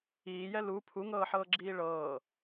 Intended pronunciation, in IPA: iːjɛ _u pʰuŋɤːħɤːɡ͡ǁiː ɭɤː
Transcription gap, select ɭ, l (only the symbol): l